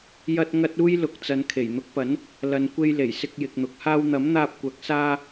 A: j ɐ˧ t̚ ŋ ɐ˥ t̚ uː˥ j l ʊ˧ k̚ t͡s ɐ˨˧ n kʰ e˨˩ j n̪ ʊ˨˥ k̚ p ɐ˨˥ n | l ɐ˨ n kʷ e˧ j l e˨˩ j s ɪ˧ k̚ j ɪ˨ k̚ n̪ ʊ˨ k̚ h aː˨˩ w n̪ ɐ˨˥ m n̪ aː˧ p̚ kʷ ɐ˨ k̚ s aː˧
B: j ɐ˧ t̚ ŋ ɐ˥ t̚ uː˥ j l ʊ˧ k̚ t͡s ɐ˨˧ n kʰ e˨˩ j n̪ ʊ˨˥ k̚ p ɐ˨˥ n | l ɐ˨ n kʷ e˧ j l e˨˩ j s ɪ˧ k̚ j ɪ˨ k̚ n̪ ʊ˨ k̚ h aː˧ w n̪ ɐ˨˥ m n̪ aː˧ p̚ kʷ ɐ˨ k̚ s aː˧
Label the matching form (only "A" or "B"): B